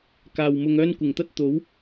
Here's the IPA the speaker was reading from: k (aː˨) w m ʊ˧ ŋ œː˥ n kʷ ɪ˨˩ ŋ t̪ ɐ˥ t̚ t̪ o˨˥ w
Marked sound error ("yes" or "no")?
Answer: no